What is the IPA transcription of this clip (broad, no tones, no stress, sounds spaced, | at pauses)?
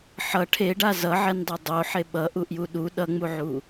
ħ ʌ ʈʰ e ɖ a z ʌ ʕ ɛ n dˤ e dˤ o ħ e ɓ ʌ ʔ u ʔ j u ɗ u ɗ ʌ ŋ͡m u ʕ u